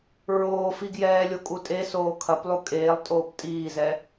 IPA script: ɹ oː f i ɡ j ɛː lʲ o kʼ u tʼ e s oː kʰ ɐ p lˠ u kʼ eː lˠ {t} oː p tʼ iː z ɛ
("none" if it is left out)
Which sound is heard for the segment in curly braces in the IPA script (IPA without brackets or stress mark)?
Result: tʼ